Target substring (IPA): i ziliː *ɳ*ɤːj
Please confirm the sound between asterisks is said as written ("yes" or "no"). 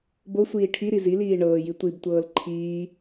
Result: yes